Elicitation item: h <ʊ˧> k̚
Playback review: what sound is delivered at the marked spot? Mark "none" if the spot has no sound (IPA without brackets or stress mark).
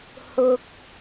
ʊ˥